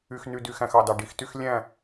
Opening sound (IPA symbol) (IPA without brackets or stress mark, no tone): y